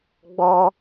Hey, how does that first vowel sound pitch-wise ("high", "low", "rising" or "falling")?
high